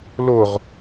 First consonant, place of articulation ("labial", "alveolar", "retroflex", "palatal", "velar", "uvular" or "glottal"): alveolar